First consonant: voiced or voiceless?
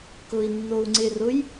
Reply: voiceless